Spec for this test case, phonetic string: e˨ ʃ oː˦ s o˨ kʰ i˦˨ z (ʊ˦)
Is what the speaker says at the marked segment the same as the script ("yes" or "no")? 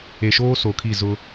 yes